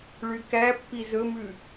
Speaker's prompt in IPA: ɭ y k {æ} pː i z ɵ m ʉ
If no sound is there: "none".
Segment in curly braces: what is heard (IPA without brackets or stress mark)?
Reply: æ